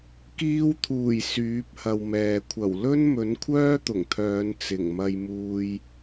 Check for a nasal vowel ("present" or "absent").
absent